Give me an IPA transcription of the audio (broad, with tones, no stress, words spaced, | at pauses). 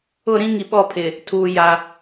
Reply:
ʊ˦˨ɾĩ˦ ŋi˨ɓɔ˦˨pʰɪ˨ | tʰuː˨ ja˦